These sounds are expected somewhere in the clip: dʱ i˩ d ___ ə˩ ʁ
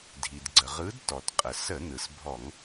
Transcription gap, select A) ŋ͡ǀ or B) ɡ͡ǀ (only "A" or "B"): B